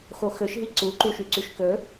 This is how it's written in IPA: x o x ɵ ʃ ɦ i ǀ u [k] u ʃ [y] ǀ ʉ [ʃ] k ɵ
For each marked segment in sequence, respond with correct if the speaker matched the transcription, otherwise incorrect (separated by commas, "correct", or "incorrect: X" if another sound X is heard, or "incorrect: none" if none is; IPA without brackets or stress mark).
incorrect: ǃ, correct, correct